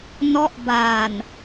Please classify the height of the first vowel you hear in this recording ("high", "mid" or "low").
mid